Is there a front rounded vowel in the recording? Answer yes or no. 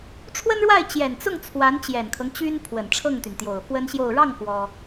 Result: yes